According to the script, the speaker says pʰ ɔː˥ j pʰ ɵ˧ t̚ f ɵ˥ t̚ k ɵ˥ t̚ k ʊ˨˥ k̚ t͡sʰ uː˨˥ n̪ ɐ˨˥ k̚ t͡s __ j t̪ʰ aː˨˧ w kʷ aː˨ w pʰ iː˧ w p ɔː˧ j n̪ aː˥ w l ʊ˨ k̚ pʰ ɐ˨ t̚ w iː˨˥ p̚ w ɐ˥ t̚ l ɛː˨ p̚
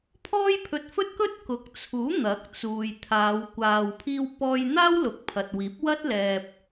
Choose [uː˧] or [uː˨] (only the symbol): uː˨